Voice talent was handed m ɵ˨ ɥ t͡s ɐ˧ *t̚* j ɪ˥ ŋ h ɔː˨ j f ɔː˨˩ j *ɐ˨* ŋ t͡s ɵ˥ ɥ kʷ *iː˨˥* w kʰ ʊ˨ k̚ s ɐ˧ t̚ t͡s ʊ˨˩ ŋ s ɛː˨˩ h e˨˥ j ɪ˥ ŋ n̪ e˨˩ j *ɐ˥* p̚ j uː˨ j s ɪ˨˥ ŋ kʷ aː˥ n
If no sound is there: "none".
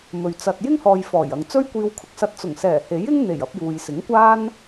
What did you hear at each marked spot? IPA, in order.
t̚, ɐ˨, iː˧, ɐ˧

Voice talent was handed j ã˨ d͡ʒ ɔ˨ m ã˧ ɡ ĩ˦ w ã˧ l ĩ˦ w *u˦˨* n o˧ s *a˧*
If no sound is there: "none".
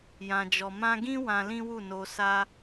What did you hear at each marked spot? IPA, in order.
u˦˨, a˧

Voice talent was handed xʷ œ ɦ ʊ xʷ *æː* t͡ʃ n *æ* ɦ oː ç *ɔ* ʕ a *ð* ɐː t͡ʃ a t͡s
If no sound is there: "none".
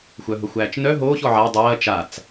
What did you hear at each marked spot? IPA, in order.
æː, œ, ɔ, dˤ

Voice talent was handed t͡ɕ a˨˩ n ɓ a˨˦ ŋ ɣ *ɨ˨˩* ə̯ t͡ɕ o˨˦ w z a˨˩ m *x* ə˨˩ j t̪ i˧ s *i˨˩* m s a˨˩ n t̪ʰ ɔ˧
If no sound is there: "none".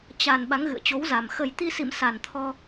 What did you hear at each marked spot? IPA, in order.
ɨ̰˧˨, x, ḭ˧˨

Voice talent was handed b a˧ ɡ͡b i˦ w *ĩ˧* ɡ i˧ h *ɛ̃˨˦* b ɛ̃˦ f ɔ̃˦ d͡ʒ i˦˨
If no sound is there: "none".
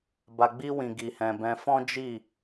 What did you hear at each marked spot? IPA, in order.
ĩ˧, ɛ̃˧

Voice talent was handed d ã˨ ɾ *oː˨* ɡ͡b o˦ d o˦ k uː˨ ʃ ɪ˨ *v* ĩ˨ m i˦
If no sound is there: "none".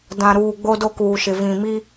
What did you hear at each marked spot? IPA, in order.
uː˨, v

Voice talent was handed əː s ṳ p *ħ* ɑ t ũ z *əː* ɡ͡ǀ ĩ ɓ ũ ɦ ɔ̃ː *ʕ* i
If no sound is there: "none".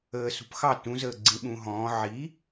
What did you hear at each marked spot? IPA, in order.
x, əː, ʕ

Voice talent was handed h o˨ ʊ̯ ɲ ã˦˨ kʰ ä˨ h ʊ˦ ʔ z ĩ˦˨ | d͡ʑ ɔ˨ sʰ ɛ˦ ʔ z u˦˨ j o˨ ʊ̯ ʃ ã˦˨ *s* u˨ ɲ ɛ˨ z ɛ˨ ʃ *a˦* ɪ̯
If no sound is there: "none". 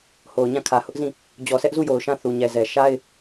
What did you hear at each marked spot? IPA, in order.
θ, a˦

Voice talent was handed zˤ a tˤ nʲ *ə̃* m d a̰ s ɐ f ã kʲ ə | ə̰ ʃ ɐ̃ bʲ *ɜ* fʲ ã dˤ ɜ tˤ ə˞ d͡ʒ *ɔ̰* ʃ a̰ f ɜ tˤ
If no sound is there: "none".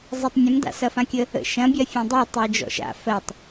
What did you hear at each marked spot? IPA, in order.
ə̃, ɜ, ɔ̰

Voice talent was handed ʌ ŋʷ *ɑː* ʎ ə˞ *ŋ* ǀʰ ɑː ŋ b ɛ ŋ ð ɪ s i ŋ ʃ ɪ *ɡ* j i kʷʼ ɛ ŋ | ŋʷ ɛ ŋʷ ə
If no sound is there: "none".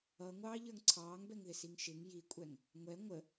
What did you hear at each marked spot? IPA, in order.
ɑː, ŋ, ŋ

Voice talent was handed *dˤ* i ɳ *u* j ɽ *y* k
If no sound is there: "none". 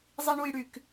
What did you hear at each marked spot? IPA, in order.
zˤ, u, y

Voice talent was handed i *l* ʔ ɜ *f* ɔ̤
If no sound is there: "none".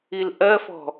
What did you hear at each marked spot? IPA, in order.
l, f

